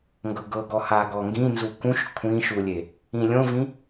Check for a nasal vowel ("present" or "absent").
present